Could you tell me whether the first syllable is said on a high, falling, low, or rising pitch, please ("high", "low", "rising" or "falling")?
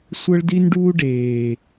high